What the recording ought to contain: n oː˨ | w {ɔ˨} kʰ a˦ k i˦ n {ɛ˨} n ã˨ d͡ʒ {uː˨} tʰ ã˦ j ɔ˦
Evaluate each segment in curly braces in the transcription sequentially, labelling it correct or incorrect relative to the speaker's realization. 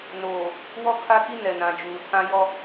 incorrect: ɔ˦, correct, correct

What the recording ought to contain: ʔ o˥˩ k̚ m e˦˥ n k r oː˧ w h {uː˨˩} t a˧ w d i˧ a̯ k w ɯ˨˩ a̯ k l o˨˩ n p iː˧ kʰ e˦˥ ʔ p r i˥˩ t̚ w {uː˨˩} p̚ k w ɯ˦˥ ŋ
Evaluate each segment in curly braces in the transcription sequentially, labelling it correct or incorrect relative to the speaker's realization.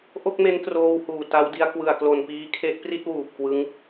correct, correct

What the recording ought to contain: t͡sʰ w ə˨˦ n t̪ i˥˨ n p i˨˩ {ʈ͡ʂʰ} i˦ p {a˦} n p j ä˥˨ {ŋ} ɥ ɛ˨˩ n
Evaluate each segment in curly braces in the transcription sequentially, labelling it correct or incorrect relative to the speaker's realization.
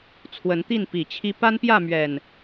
incorrect: t͡ɕʰ, correct, incorrect: m

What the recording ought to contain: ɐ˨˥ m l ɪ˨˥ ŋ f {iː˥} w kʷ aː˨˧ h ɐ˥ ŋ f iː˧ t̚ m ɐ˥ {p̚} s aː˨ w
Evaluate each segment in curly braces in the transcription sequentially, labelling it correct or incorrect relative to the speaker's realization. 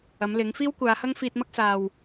correct, incorrect: k̚

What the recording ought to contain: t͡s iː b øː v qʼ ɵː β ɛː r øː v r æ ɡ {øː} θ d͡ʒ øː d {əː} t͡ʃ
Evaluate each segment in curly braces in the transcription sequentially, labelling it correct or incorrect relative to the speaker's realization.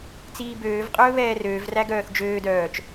incorrect: œː, incorrect: œː

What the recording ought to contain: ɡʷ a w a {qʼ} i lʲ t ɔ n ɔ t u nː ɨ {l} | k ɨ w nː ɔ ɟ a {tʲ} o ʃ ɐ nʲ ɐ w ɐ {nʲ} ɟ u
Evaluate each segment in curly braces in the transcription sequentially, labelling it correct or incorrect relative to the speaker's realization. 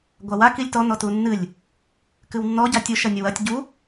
incorrect: k, incorrect: lʲ, correct, incorrect: tʲ

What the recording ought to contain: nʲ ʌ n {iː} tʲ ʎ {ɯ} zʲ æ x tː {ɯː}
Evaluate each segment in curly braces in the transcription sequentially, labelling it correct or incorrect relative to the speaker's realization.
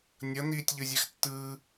correct, correct, correct

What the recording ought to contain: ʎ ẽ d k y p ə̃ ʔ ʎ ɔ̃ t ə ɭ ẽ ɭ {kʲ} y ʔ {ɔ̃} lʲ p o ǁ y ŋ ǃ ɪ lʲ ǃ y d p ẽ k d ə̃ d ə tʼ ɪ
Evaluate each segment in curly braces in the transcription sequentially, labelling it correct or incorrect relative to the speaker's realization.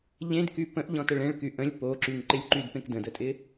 incorrect: k, incorrect: ə̃

